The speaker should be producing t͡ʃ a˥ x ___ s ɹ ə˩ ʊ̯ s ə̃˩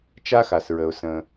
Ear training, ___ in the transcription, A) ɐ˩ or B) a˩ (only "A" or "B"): B